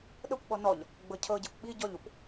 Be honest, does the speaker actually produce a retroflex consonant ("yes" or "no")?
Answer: no